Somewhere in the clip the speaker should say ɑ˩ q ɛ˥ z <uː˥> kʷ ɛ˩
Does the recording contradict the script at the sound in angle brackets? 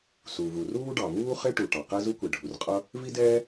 yes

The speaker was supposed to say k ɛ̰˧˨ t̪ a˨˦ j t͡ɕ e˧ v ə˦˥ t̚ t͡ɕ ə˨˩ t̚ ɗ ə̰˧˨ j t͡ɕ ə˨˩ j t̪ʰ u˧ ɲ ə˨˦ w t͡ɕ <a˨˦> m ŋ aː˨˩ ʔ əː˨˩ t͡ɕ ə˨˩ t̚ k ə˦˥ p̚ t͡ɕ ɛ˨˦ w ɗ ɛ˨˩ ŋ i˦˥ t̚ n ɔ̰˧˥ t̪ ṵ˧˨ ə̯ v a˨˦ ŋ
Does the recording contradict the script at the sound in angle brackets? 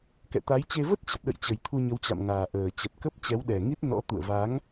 yes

